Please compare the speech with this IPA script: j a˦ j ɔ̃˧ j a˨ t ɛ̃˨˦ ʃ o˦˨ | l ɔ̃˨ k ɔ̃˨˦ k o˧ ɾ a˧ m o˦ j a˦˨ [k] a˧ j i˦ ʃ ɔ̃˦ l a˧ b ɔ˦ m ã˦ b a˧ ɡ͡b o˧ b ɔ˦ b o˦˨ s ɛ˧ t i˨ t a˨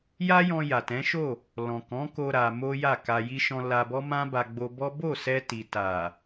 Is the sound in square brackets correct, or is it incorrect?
correct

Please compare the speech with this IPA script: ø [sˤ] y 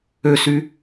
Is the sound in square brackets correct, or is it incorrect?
incorrect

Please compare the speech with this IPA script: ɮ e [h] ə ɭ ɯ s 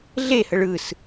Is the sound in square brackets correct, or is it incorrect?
correct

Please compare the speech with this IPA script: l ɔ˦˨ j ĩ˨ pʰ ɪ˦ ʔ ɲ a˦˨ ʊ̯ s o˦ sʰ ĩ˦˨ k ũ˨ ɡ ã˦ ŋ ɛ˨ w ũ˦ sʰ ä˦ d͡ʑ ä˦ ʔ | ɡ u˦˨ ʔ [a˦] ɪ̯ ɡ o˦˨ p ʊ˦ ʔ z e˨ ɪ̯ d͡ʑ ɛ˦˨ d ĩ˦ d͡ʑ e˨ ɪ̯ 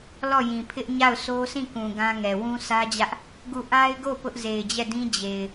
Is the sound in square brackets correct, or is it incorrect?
correct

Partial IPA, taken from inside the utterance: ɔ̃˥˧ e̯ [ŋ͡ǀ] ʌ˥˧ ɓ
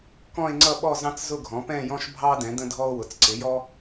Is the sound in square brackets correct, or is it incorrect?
correct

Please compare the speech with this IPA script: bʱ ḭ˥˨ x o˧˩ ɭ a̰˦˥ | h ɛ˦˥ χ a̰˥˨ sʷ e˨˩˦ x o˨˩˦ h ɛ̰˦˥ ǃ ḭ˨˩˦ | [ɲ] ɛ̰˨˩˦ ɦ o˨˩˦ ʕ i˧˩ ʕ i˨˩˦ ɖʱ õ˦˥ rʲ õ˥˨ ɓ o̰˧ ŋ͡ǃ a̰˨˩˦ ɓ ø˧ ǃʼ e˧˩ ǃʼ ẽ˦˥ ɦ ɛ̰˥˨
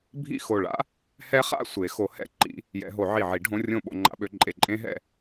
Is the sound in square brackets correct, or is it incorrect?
incorrect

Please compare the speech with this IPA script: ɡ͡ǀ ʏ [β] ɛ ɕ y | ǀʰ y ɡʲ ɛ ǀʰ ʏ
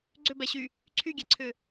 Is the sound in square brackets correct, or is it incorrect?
incorrect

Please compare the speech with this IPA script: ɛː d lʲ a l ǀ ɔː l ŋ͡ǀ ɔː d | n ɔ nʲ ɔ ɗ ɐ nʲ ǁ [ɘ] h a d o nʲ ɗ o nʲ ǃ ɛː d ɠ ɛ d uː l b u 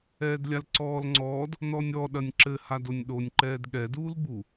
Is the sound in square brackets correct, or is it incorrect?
correct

